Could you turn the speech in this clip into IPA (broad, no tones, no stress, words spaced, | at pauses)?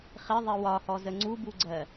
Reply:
χɪðˤɪ wɒhɔzə ŋ͡ǀubuɡ͡ǀɜ